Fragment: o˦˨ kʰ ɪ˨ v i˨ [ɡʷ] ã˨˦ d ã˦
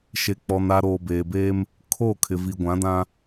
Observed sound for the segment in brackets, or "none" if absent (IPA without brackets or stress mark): ɡʷ